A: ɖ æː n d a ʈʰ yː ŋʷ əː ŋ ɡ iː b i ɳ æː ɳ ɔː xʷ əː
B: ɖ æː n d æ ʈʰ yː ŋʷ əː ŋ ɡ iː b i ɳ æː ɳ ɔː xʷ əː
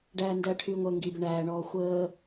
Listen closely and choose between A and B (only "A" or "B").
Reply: B